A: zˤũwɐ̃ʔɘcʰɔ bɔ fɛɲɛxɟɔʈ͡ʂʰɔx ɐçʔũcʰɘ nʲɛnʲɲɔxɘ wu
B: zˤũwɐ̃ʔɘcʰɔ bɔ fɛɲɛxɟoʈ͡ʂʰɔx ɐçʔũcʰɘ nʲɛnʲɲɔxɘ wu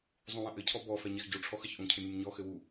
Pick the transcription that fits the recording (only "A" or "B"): B